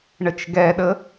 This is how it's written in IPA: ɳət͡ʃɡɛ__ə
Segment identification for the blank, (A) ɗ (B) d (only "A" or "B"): A